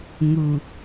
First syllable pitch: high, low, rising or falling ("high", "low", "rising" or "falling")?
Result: low